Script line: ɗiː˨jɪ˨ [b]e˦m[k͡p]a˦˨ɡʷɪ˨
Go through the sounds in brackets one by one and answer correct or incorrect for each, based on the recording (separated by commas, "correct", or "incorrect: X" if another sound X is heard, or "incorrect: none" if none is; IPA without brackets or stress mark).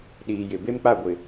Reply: correct, correct